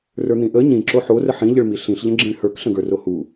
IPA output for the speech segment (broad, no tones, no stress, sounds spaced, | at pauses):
r ə˞ n̪ ĩ ʔ ə ɲ ĩ ǁ o ħ o r ə ħ ĩ ʎ ə ɭ m i ɬ ĩ ɬ ʎ ə̃ ɡ͡ǁ ĩ ɭ h ə˞ k ɬ ə̃ ɡ ə˞ r o h u